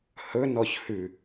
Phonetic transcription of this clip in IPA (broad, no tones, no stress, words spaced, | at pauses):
hɵnɔç hʉ